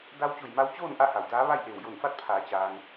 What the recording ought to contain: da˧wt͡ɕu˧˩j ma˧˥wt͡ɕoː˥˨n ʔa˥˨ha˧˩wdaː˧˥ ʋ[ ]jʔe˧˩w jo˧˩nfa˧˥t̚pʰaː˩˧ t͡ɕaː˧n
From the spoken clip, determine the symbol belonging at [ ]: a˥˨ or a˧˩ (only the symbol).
a˥˨